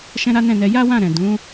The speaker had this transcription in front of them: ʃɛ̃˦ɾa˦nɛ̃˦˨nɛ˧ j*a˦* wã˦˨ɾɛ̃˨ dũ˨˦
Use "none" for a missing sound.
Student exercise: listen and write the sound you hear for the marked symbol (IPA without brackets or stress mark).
a˦